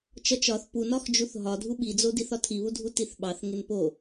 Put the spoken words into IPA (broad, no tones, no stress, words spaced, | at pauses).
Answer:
t͡ʃɒt͡ʃɒθ punɒxd͡ʒuθ ɦɒdʱu ɓid͡zodiθ ɒtʰiβudʱu tiθɓɑθ ŋenpo